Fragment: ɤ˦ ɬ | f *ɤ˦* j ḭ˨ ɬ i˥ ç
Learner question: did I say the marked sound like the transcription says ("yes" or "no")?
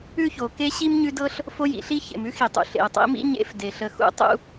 no